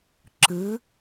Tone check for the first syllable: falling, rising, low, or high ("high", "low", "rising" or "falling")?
rising